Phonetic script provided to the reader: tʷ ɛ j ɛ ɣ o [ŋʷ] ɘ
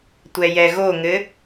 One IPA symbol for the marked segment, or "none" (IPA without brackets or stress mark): ŋ